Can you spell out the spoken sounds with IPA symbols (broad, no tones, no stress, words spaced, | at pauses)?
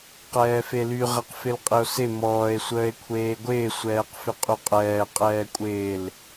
qɛːfely ʁɛqfɪlqʼɪo̯sɪ mɔːe̯ sʷəːe̯kʷʰeːɡʷɪː sʷɛːqfɪqʼyqʼɛː qʼɛːkʷʼɪːl